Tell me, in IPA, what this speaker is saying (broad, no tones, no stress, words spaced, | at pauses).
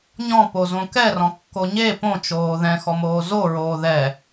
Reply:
ɲɔ̃po zõkɛrɔ̃ kːoɲe põt͡ʃoː ðɛ̃xɔmoː zoɹoː ðɛ